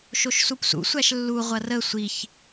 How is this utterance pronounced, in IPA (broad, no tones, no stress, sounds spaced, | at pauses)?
ʃ o ʃ s u p s ṵ sʷ æ ʃ lː u ʁʷ ɐ r ə sʷ i ç